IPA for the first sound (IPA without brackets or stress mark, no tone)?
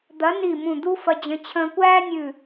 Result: d̪